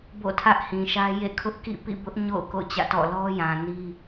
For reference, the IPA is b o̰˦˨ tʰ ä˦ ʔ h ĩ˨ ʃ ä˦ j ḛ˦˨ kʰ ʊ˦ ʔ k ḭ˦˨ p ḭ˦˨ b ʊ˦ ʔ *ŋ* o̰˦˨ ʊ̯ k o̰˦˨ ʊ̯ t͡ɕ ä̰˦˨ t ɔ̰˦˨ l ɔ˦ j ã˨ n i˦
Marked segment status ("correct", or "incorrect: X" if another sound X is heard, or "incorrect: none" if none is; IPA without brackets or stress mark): incorrect: ɲ